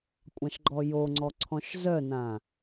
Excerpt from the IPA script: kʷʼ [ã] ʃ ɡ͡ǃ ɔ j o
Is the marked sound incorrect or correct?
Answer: correct